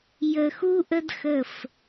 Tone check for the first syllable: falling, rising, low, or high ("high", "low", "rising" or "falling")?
low